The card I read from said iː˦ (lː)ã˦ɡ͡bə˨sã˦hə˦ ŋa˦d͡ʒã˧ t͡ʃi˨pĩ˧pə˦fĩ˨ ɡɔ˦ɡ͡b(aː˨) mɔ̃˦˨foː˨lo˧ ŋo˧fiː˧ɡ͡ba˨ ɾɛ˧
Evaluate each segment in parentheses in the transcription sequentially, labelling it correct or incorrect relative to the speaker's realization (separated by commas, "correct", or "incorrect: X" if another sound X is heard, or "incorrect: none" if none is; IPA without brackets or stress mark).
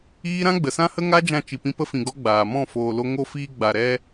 incorrect: ɾ, correct